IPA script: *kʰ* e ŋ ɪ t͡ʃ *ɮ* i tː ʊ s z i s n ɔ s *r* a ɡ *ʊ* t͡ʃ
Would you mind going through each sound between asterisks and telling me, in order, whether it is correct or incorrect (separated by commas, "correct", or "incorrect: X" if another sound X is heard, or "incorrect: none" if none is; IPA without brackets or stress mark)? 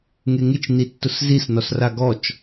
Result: incorrect: ŋ, incorrect: n, correct, incorrect: ɔ